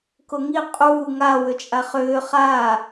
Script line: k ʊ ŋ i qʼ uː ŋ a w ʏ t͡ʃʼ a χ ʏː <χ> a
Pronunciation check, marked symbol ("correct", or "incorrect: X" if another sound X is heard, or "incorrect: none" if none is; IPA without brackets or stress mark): correct